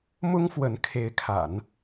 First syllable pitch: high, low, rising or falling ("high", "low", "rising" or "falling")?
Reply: high